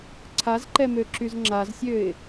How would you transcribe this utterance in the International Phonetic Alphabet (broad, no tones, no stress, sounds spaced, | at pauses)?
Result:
ǀʰ a z ǃ ɛ m ø ǁ y z ŋ͡ǁ a z sʲ ø ɪ̯